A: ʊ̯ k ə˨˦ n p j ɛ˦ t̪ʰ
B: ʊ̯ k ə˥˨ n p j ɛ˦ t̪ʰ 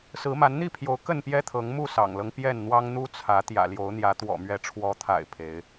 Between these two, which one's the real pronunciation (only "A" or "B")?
B